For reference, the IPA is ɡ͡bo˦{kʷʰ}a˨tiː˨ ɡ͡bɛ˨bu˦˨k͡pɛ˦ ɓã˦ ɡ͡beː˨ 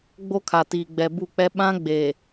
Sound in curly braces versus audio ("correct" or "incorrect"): incorrect